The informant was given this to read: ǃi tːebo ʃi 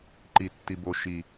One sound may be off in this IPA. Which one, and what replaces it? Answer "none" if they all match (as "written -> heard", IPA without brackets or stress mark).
e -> i